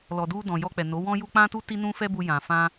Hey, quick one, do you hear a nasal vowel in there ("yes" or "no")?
yes